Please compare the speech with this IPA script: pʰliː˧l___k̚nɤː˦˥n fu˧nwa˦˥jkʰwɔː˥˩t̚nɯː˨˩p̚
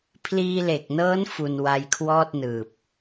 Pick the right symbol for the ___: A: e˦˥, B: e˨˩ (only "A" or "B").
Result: B